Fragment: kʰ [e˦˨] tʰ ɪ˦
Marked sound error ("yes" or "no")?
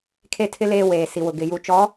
no